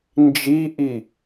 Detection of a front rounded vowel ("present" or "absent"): absent